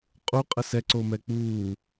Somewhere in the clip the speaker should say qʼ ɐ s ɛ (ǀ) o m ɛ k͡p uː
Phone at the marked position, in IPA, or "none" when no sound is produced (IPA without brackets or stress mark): ǀ